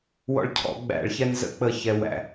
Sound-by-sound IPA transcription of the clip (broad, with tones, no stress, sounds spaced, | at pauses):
w ɔ̰˧ ɭ cʰ ɔ̰˧˩˧ ɡ͡b æ̰˧˩˧ ɭ ç ɛ˧ n z ə̰˧ k͡p ə˧ ç ɛ˧ w æ̰˧˩˧